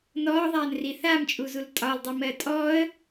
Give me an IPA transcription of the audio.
n ɔː ðˤ aː n r i θ a m t͡ʃʼ u z u l tʼ ɒ l dˤ i m ɜ tʼ ɔː ə̯

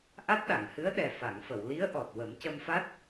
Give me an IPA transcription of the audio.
ʔ a˦˥ t̚ ɗ a˨˩˨ ŋ h ɨ˧˥ ə̯ ɗ ɛ˨˩ f a˨˩˨ ŋ f ə˨˩˨ w l i˧˥ ə̯ ʔ ɔ˨˩ t̚ w ə˨˩˦ m c ə˧ m f a˦˥ t̚

